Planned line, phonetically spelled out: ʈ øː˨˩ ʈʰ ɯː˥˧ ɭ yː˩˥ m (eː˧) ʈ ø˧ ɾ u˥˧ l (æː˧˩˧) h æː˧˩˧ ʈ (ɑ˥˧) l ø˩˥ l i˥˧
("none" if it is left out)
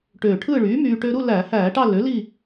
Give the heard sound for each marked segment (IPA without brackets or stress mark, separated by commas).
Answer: yː˧, æː˧˩˧, ɑ˥˧